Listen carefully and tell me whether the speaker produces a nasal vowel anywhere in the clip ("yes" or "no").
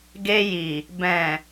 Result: yes